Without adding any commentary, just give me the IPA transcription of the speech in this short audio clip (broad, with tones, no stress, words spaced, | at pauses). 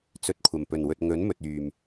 t͡sɵ˨t̚kʷʰɐ˨˩mpɵ˨˩nwɵ˨t̚ ŋɵ˨˥nmɵ˨t̚yː˨m